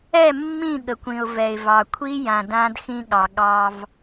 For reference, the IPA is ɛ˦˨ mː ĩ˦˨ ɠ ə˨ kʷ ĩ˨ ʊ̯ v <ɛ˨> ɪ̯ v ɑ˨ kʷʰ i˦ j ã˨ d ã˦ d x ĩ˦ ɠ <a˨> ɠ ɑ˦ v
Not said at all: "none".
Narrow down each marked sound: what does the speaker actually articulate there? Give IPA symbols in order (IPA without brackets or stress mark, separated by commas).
ɛ˨, ɑ˨